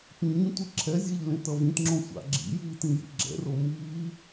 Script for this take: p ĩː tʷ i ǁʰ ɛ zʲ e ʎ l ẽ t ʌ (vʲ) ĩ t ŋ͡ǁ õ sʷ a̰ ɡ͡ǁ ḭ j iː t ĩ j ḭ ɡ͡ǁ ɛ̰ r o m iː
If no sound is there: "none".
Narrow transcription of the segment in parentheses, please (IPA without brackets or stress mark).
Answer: v